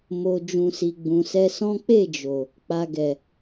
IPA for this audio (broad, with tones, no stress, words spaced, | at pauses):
mo˨ d͡ʒũ˨si˨ ɡ͡bũ˨sɛ˧sɔ̃˦ k͡pe˦˨d͡ʒo˨ | k͡pa˨ɡɛ˨